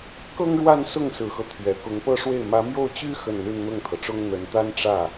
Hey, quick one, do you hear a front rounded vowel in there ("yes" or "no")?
yes